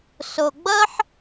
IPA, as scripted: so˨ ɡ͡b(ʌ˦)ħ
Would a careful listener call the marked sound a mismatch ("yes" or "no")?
no